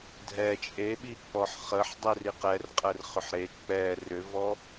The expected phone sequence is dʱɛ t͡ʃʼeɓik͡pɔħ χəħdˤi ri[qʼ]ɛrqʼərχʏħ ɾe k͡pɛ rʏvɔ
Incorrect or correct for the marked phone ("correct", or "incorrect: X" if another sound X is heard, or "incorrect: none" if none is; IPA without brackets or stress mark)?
incorrect: q